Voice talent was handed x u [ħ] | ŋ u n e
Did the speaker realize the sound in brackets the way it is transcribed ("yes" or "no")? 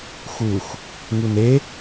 no